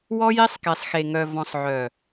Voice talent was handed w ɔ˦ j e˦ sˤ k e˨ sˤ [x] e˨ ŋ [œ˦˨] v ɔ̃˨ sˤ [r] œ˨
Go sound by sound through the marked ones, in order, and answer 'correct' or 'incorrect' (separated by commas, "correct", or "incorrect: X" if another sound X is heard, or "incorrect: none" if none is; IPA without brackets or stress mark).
correct, incorrect: œ˨, incorrect: ʕ